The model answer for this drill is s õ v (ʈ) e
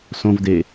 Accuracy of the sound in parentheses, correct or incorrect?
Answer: incorrect